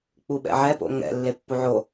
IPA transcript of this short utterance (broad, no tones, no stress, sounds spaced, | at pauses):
k͡p u ɓ ɛ̰ ʕ ɛ p o̰ ŋ ɛ̰ lː e pː u ʕ o